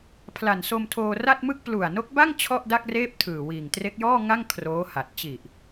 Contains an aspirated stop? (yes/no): yes